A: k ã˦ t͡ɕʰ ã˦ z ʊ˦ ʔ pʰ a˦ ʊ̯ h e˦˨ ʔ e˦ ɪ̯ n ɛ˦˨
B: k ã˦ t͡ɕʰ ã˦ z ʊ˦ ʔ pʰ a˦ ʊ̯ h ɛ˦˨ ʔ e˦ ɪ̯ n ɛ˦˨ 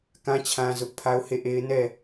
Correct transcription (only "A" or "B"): A